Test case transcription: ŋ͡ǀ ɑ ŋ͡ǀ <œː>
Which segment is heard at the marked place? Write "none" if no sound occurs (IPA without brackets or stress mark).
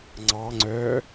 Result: œː